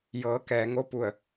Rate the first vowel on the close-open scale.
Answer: mid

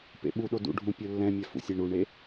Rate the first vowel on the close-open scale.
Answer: mid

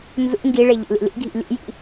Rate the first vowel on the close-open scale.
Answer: close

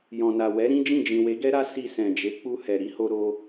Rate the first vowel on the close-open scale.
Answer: mid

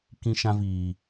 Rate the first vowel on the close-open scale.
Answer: close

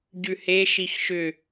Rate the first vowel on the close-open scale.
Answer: close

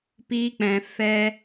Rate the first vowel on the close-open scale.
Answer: close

